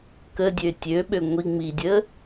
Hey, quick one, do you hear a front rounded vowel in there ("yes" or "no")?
yes